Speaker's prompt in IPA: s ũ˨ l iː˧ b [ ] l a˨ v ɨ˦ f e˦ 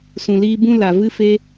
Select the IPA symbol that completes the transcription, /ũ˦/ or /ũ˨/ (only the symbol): ũ˦